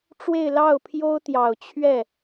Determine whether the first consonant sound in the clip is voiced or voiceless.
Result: voiceless